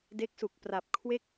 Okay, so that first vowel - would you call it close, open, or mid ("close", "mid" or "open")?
mid